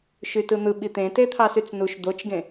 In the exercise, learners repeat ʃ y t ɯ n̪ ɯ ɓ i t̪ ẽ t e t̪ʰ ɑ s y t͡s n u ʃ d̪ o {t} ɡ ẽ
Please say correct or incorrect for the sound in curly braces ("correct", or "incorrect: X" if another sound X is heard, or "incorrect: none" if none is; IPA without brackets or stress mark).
incorrect: t͡ʃ